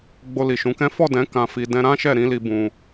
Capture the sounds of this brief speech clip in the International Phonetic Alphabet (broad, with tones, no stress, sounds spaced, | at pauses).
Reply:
ɡ͡b o˧ l i˨ ʃ ũ˨˦ k ɛ̃˦ f ɔ˦˨ d ɛ̃˨˦ k ã˧ f i˧ d ɛ̃˧ ɾ ã˦ ʃ ɛ˦˨ ɾ ĩ˨˦ l i˧ b ũ˧